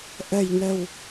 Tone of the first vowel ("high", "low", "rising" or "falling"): low